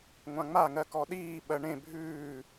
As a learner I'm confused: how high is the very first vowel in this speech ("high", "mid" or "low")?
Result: low